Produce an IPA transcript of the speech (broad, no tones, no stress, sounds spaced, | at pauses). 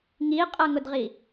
ŋ i qʼ ʌ ŋ ʊ d ʁ i